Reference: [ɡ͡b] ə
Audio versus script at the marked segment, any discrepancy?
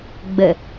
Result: no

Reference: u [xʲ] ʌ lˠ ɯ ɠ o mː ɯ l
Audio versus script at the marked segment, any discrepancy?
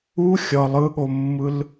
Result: no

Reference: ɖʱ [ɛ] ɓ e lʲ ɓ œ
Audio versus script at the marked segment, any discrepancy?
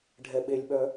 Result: no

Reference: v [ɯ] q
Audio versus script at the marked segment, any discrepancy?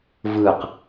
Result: no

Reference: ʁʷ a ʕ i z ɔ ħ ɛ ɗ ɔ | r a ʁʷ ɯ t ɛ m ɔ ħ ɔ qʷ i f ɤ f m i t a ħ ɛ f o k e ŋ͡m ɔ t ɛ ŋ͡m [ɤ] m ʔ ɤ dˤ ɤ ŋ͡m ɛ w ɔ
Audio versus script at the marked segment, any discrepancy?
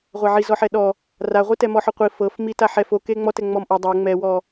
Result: yes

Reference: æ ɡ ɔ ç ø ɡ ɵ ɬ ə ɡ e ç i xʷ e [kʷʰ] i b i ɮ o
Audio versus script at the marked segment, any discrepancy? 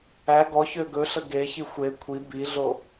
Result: no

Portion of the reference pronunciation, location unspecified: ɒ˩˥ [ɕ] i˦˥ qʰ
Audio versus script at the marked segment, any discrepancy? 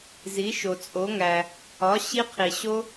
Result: no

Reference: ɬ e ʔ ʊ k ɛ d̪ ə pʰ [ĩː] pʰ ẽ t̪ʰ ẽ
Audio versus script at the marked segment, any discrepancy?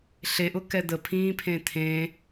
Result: no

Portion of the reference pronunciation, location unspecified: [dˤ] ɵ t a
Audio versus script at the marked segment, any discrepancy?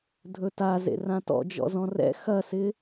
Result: yes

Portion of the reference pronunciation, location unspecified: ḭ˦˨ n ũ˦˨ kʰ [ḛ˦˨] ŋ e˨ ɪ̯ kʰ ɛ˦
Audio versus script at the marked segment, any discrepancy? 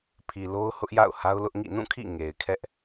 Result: yes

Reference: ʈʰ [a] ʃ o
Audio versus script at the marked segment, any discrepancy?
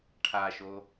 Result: no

